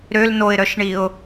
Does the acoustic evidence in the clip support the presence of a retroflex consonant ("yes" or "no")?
yes